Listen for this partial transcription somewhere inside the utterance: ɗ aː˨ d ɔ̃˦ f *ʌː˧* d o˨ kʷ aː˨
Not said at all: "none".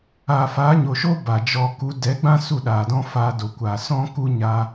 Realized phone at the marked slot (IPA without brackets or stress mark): aː˧